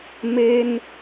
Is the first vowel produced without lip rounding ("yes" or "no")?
yes